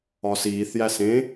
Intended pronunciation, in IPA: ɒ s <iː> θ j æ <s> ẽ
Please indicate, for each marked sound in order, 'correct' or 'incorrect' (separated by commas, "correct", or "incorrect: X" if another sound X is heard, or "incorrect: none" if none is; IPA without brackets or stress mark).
correct, correct